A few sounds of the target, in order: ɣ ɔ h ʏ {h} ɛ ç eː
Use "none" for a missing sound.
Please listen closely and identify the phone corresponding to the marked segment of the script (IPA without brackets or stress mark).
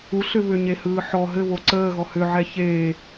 ʕ